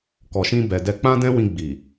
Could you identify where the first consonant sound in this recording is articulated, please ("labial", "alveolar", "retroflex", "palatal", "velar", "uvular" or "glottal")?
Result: velar